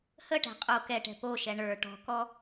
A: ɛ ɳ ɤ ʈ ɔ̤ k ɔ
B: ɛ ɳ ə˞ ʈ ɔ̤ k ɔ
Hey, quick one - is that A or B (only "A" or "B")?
B